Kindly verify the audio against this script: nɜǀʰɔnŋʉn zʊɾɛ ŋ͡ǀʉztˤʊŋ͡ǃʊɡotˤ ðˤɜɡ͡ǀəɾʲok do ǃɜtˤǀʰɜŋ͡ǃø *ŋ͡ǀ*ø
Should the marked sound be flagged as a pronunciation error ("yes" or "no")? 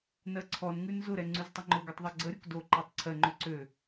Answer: yes